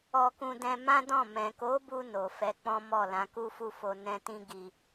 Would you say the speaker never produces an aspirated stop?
yes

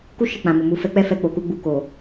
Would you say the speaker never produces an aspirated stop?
yes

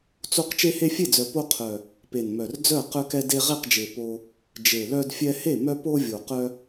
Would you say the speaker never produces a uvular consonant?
no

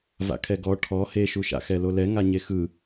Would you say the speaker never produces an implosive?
yes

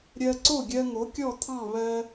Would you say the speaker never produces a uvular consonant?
yes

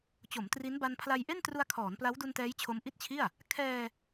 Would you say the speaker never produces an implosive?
yes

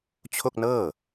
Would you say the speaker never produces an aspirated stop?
no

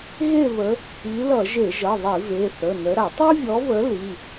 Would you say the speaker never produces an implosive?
yes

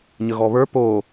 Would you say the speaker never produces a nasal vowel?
yes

